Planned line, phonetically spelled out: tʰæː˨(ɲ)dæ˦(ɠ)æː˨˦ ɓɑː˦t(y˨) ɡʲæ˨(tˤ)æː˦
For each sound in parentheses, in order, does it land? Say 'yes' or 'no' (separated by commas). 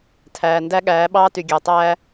no, yes, yes, yes